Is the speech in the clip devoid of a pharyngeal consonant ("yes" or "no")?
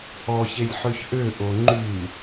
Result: no